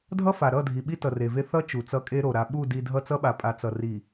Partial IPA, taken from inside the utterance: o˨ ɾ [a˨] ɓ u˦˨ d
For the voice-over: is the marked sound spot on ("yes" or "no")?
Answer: yes